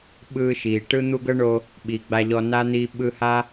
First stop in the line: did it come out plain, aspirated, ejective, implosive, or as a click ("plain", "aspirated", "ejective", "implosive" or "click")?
implosive